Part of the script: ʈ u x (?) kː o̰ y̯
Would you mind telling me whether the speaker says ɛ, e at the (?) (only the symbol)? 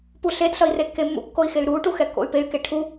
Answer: ɛ